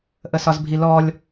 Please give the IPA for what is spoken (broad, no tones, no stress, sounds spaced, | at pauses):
ʔ ə s ɒ z bʱ i l ɔ lʲ